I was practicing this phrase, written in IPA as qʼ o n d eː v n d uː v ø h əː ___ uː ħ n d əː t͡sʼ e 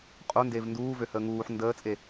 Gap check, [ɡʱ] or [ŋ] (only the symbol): ŋ